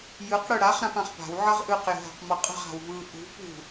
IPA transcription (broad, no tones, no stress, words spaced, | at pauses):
jɯq ɽɯɽaχ ɾãpãχpa̤w ʕʌʁʔɯq jə̤ɦa̤qmʌqʼə̤ʁ a̤wvɯ ʔṳ pṳ